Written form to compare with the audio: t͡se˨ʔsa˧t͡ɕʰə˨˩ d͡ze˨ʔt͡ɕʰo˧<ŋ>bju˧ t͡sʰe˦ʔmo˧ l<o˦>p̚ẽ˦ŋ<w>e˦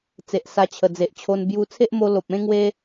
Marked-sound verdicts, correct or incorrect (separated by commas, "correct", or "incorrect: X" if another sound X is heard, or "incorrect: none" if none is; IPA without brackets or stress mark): incorrect: n, incorrect: o˨, correct